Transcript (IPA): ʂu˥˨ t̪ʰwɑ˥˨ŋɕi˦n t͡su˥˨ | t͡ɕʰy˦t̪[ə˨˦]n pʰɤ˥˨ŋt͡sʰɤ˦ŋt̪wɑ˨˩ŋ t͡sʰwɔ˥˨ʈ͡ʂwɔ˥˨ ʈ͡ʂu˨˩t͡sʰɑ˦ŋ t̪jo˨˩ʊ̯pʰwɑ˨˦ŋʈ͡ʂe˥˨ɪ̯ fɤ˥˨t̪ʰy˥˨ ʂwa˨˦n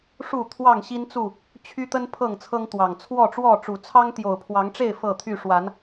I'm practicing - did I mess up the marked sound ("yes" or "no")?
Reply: yes